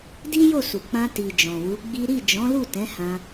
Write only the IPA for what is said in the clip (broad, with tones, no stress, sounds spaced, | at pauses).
d i˦ j o˦˨ s u˨ k͡p ã˧ t i˨ d͡ʒ ɔ̃˨ w u˨˦ ɡ͡b i˦ ɾ i˦˨ d͡ʒ ɔ̃˨˦ l u˦˨ t ɛ̃˨˦ h ã˧